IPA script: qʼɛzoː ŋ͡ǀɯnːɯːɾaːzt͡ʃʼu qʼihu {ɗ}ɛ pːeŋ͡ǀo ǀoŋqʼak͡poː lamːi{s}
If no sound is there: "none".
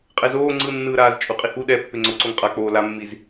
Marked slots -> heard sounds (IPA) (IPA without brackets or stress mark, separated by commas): ɗ, z